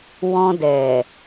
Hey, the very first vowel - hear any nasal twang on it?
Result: yes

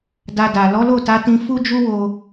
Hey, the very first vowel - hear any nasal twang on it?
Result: no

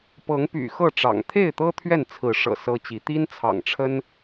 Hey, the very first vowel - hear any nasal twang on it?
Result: no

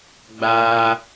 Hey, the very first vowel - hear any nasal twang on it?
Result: no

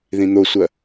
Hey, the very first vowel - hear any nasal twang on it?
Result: yes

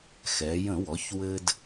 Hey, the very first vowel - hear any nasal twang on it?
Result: no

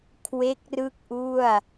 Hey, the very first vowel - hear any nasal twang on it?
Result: no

